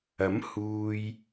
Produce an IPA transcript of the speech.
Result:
ɐ˨˥ m h uː˨ j

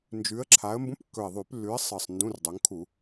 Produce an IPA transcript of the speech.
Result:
n d͡ʒ ʉ˨˦ ə̯ ǁʰ a˨˦ ə̯ m b ũ˧˥˧ p kː ɵ˨˩ ɪ̯ ðˤ ʉ˧˩˧ p lː ʉ˨˦ ɪ̯ sˤ ɨ˨˩ sˤ n d ũ˧˥˧ r dˤ ɵ˨˦ ŋ kʰ u˧˩˧

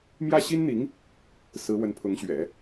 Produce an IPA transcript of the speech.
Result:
m j ä˥˩ ɕ i˥ n n̪ i˧˥ ŋ | s ɹ̩˧˥ w ə˧˥ n pʰ ʊ˧˥ ŋ ɕ ɥ ɛ̰˨˩˦

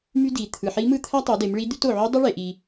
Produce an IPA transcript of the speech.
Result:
m y˥ d i˩˧ t̪ʰ ɯ˩ ħ i˧˥ m ɯ˥ t̪ʰ æ˥ tˤ u˩˧ d e˩˧ m ɭ i˧˥ d̪ y˧˥ t o˩ ʕ y˧˥ dˤ e˥ ɭ e˩ ʔ i˩

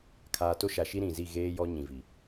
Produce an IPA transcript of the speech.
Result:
kʰ aː˨ t o˦ ʃ a˨ ʃ i˦ ɾ ĩ˨ z i˦˨ ɣ eː˦ j ɔ˦ ɲ ĩ˨ v i˨

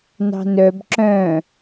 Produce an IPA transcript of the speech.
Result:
n ɑ̤ n œ b ǁ œ̃ː

